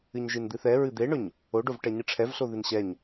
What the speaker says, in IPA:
ɨ ɲ ʒ ɨ n d̪ ɨ θ ɛ ɹ ɨ d̪ e ɳ ɵ ɲ | o ɖ o v ʈ ɛ ɲ ɨ ʈ͡ʂʰ ɛ v ɬ o ð ɨ n ɕ ɛ ɲ

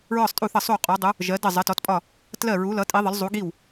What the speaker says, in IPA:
ɹ ɒ˥˩ sˤ tʼ u˥˩ θ ʌ˥˩ sˤ u˥˩ qʼ ɔ˨˥ dˤ u˨˥ | ʒ ɜ˨˥ d ə˥˩ zˤ ɜ˨˥ t ɔ˨˥ t pʼ ɒ˥˩ | t l ɜ˥˩ ɹ u˨˥ l ʌ˨˥ tʼ i˨˥ ðˤ ə˨˥ l zˤ u˨˥ ɡ i˥˩ w

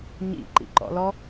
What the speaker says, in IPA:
ɲ ḭ ǃ ḭ ǃ ɔ̰ l ɔ

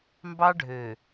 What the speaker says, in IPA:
m b ɑ˦ ɖʱ ø˨

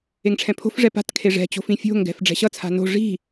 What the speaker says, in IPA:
e ŋ ʈ͡ʂʰ ɛ̃ pʰ o̤ f ʐ ɛ p a̤ t kʰ e ʐ ɛ̤ t͡ɕ o̤ f ĩ fʲ o̤ ŋ ɡ ɛ̤ f ɖ͡ʐ ɛ̤ ɕ ʌ t͡sʰ a̤ n o̤ ʐ i̤

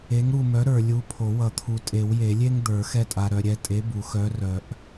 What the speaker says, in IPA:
e˨˥ ŋ ɾ u˦˨ m œ˨˥ ɾ ə˞˨ lʲ u˨˥ pʰ o˨˩˦ w ʌ˨˩˦ t̪ʰ u˨ tʼ e˨˩˦ w j e˨˩˦ lʲ e˥ ŋ d̪ ə˞˨˩˦ x ɛ˦˨ tʼ a˨ ɾ œ˨ ɾʲ ɛ˦˨ tʼ e˨˥ b u˨˩˦ x œ˨˥ r œ˨˩˦ ʔ

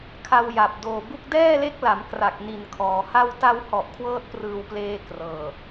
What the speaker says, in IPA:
kʰ a˧ w j a˨˩ p̚ d oː˨˩ b u˥˩ k̚ d ɛː˥˩ l e˦˥ k̚ l a˩˦ m k r a˨˩ k̚ n i˨˩ n kʰ ɔː˩˦ h a˧ w t a˧ w h ɔ˨˩ ʔ kʰ w ɤː˥˩ t̚ p r ɯː˨˩ w p l eː˧ k r ɤː˨˩

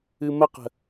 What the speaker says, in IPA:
ɨ m ə q ə̤

